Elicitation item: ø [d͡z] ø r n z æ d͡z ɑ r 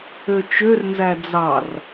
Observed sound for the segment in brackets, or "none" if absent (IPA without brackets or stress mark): t͡ʃ